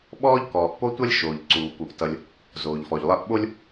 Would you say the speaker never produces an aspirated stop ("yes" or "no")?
yes